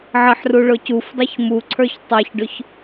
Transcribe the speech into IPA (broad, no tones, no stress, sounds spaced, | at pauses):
ʕ ə ħ r u ɭ ʊ c u f dˤ ɛ ç m u ǀʰ ə˞ ç tˤ ɑ ç ɖ ʊ ç